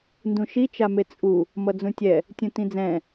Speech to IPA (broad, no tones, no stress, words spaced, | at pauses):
ndũʃi t͡ʃamet͡sʼu | mʌd͡zũtʲɛ | tʲũtĩd͡zɛ̃